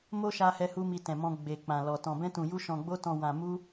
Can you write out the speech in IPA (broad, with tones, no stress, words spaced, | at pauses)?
mo˦ʃa˧hɛ˧hu˧ mi˧tɛ̃˨mɔ̃˧ ɡ͡be˨k͡pã˨lɔ˨ tɔ̃˨bɛ̃˧tũ˨ju˧ ʃɔ̃˨ ɡ͡bo˧tɔ̃˨ wã˨mu˧